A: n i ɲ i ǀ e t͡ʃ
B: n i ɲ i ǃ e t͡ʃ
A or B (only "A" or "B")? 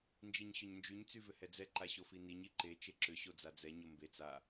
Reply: B